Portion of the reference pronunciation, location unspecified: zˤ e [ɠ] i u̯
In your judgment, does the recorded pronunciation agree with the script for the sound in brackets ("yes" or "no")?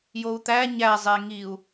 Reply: no